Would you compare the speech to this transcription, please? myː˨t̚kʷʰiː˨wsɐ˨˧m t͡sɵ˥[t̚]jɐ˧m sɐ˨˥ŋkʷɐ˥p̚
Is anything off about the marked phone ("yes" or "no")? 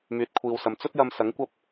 no